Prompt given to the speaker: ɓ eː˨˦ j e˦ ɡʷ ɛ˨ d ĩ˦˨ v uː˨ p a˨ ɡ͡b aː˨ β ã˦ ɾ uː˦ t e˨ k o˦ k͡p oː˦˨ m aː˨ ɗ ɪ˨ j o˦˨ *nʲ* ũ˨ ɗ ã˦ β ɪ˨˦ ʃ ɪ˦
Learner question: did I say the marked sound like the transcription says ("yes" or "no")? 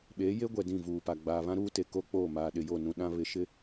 no